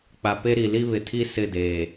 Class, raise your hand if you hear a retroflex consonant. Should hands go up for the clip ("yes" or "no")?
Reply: no